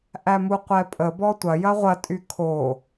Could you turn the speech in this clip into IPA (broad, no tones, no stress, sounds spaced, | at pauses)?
ʔ æ m u qʷ ɛ pʼ ə b ɔ tʷ ɐ j ɐ ʁʷ ɐ tʼ y kʰ o